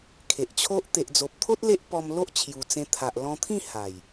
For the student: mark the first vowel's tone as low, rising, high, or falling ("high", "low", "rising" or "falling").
low